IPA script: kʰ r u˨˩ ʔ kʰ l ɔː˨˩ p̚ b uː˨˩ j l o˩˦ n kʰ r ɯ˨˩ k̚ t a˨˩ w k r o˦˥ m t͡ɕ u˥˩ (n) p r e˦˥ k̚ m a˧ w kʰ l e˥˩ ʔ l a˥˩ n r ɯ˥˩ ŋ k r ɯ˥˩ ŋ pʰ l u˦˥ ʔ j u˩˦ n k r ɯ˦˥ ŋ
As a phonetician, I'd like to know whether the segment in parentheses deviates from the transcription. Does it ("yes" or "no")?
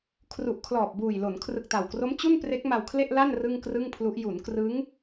no